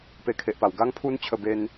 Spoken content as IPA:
pe˧kʰe˨ʔpa˨˩w ɡa˦ŋpʰu˦nt͡ɕʰə˧be˧n

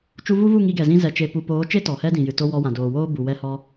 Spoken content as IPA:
t͡ʃu˧vu˦vu˦˨ ŋi˧ɡɛ˨zĩ˧ zɛ˨t͡ʃe˨ pu˨poː˨˦t͡ʃe˦ tɔ˨hɛ˦dĩ˨jɨ˨ to˧ wɔ˧wã˨ doː˨woː˦ bu˨ wɛ˧hɔ˧

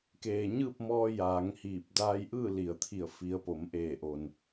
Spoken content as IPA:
keː˩ ɲɯː˥˨p̚mɔː˧ jaː˩˧ŋhiː˧˩p̚ daː˧jʔɯː˥˨li˩ə̯t̪ʰi˧˩ə̯ fi˩˧ə̯po˩˧m ʔeː˧˩ʔo˩n

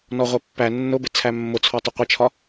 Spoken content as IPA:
nɔʁʷɜpːæ nːʊbɪ t͡sʰæmːʊt͡sʰɔ tˤʊqʷɪt͡ʃʰɒ

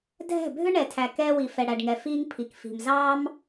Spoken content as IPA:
dʱɛ̤˦˨ bʱʏ˦ɳɛ˨tʰæ˨ kɛː˧wi˨ fɛ˨ɽæ˨ɖŋɛ˨ fiː˦ŋ pʰi˨kfi̤˨mzɑː˦m

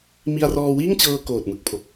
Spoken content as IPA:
mi˧a̯rɔː˧wiː˥˩ŋt͡ɕɤː˧ koː˨˩t̚mɯ˨˩k̚ pʰo˨˩k̚

